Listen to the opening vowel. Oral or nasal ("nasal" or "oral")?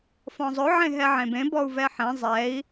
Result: nasal